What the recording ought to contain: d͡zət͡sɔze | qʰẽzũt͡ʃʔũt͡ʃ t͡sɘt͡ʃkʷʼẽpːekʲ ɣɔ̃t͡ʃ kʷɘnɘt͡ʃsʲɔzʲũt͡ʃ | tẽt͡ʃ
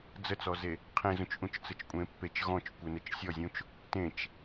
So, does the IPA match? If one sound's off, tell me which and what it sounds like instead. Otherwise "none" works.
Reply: kʲ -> t͡ʃ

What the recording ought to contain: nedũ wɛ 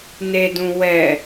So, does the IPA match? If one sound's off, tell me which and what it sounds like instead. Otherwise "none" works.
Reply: none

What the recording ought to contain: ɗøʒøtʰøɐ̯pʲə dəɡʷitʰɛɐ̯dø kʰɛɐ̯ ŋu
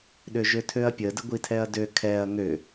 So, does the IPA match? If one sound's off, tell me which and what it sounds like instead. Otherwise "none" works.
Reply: u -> ø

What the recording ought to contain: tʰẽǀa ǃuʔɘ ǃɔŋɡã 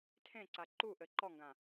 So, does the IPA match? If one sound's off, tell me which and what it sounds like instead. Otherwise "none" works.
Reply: none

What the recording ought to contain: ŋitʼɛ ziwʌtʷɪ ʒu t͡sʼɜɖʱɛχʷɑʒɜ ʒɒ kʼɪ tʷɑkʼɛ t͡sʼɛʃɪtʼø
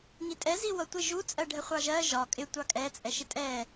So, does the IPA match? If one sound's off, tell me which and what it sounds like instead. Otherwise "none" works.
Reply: ø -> ɛ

